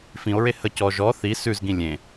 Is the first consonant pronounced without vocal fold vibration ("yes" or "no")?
yes